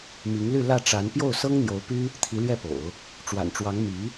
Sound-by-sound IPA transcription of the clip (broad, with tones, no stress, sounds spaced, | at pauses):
m i˧˥ ŋ l y˥˧ l ä˥˩ ʈ͡ʂ a˧˥ n p j o˥˩ ʊ̯ s ɤ˥ ŋ n̪ j o˧˥ ʊ̯ p y˥ | t̪ʰ i˧˥ l ɥ ɛ˥˩ p o̰˨˩˦ ʊ̯ | ʈ͡ʂ w a̰˨˩ n ʈ͡ʂ w ɑ˧˥ ŋ m i˧˥